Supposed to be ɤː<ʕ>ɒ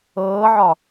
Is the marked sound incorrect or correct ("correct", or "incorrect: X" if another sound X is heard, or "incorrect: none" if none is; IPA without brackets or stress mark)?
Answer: correct